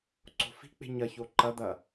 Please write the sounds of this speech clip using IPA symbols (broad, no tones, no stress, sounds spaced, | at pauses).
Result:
ǀ o̤ f i̤ k͡p e̤ ɲ ɐ ç o ǃ ɐ d̪ ɐ